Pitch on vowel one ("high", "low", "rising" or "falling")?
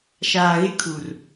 low